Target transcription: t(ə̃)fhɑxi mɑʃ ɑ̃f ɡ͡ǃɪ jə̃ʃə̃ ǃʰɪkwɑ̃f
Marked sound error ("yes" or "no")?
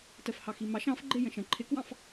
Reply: yes